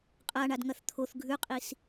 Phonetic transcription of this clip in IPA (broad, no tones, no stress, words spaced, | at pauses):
qʼaɳadŋɐθ t̪ʰoθ ɡʱʉqʼis